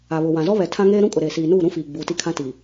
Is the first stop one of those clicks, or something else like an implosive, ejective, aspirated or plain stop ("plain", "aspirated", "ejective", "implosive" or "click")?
aspirated